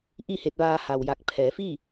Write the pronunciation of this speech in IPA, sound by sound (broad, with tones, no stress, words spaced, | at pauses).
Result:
ʔi˥˨he˧t̚ʋaː˧ ha˩wja˧˩k̚ pʰɛː˩˧fiː˥˨